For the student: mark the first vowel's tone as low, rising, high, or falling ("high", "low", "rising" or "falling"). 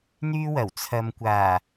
high